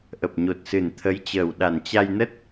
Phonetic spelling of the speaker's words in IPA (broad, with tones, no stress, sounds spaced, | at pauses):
ʔ ə˨˩ p̚ ɲ o˨˩ t̚ s ɨ˨˩ n t̪ʰ ə˨˦ j t͡ɕ əː˨˩ w ɗ a˨˩ n t͡ɕ a˧ j n ə˦˥ t̚